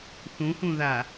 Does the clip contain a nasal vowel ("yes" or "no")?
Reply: yes